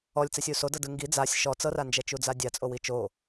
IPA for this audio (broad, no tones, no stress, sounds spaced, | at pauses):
ɔ lʲ t͡s ɛ sʲ u s o d ɤ d ɯ ŋ ɡ i d͡z a sʲ ʃ ɔ t͡s ɤ r a n d͡ʒ ɛ t͡ʃ u d͡z a dʲ a t͡sʼ o w i t͡ʃ o